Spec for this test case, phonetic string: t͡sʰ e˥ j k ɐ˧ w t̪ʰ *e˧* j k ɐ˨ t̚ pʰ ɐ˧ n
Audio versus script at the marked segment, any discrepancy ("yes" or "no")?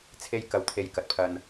no